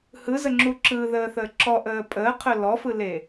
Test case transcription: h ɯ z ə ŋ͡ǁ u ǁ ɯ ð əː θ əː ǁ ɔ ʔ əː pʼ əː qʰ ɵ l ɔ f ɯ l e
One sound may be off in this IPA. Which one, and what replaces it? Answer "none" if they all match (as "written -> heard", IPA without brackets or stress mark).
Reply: none